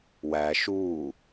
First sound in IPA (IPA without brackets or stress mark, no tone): w